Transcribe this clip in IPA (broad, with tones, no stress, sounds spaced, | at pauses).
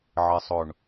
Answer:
ʕ ɪ˨ sˤ ʊ˨ ɳ